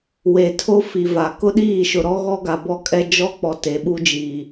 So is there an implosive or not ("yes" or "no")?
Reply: yes